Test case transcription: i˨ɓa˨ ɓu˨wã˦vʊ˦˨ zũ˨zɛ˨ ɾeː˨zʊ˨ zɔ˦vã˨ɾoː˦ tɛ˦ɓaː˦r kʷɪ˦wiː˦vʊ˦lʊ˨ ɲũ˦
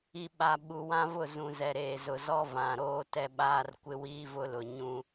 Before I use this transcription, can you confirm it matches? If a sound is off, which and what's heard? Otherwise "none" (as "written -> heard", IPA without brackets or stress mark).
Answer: none